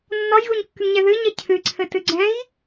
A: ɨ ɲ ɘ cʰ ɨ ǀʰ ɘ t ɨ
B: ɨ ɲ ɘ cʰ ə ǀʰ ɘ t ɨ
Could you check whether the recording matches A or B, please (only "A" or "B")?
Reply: A